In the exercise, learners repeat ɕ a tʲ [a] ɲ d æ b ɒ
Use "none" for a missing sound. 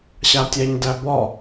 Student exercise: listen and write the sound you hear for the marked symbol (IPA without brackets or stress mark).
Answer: æ